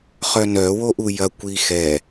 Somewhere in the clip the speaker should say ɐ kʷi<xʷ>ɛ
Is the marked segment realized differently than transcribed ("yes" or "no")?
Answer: yes